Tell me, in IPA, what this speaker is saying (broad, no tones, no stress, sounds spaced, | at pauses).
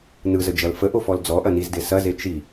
n ɯ z ə d͡ʒ ɐ l f ə ʔ o f ɔ l d͡z ɔ ʔ ɐ n i z d e s ɐ z e t͡ʃ i